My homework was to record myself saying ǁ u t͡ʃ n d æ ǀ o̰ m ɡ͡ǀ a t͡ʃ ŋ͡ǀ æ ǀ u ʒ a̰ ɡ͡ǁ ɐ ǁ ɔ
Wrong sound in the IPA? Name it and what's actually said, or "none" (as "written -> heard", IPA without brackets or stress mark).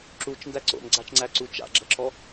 ʒ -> t͡ʃ